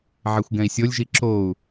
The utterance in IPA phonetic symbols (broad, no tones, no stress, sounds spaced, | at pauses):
ʕ e xʷ ɡ ɛ̃ i̯ sʲ o lʲ ʒ i ǁ o u̯